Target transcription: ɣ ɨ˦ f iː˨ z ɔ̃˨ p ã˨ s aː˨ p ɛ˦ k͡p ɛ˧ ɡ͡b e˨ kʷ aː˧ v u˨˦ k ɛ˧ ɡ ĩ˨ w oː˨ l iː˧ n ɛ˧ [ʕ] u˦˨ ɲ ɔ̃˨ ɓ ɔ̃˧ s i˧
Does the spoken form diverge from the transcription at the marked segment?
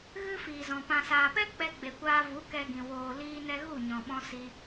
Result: yes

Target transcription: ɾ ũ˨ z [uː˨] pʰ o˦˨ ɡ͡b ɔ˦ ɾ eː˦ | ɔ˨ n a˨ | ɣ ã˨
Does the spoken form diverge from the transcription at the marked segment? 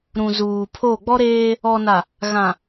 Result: no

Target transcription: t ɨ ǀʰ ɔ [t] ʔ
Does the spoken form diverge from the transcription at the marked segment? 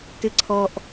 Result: yes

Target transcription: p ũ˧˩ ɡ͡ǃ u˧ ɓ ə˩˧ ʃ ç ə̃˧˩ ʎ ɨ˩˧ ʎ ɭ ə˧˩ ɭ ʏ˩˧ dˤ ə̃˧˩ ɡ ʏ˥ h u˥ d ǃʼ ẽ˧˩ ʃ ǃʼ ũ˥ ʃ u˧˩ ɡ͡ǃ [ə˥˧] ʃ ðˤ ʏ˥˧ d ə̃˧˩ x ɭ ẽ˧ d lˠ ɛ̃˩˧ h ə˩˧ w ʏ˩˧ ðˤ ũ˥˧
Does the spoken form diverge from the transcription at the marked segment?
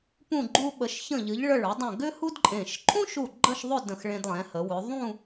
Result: no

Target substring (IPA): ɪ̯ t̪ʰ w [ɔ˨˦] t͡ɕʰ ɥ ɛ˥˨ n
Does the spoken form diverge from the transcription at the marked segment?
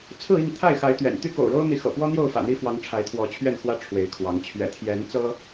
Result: no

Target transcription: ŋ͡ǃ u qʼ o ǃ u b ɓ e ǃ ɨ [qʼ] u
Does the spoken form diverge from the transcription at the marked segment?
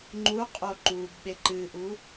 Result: yes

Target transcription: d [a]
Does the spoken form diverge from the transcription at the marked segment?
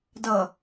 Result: yes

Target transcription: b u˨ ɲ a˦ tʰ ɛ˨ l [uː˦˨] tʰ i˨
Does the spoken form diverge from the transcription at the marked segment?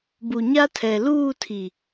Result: no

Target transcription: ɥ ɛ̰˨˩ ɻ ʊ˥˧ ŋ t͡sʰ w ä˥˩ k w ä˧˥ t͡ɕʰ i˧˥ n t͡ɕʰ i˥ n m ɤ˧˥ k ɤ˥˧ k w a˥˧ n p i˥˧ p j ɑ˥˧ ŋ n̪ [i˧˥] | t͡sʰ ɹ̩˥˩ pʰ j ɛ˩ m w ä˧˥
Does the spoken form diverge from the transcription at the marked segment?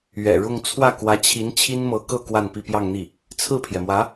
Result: yes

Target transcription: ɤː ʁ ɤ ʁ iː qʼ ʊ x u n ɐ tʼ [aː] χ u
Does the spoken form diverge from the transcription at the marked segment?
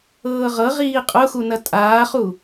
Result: no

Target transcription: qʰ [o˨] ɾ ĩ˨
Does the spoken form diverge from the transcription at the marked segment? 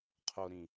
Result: no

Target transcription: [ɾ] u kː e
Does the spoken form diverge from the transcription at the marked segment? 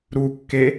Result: no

